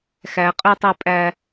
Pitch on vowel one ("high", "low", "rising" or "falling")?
rising